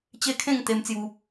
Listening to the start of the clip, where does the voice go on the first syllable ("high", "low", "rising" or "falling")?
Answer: high